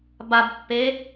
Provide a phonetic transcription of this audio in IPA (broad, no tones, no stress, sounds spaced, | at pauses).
b a b pː e